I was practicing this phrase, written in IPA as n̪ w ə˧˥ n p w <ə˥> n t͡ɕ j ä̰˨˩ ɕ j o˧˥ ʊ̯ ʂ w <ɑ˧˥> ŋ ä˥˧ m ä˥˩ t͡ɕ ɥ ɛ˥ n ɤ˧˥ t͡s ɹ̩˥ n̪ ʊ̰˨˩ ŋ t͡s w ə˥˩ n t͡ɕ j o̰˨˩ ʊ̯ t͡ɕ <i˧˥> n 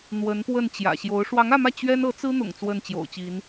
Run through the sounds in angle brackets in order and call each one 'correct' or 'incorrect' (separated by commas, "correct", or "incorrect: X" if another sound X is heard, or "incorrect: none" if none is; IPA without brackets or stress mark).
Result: incorrect: ə˥˩, correct, correct